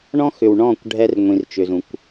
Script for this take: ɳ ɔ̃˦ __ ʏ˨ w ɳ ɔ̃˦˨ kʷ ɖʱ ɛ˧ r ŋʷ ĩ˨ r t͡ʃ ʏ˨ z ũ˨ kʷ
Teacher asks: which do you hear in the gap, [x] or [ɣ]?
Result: x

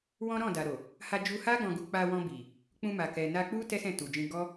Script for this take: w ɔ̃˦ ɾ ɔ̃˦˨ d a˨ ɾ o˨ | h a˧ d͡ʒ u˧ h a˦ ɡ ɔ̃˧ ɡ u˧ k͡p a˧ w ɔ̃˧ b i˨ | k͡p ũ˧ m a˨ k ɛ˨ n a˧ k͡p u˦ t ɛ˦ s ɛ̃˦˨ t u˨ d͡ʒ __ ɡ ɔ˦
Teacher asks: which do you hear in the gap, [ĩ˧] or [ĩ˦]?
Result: ĩ˧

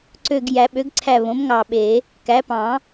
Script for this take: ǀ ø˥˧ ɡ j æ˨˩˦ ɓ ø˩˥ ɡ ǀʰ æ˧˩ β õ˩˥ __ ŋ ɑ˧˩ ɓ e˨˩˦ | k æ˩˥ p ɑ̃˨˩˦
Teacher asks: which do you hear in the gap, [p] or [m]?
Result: m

